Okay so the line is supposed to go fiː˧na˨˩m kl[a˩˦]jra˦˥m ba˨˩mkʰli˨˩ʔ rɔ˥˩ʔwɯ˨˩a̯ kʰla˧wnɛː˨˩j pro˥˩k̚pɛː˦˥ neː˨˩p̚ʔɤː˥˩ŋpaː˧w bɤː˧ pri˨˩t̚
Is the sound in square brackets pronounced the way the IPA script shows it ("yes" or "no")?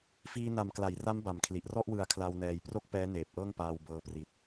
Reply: yes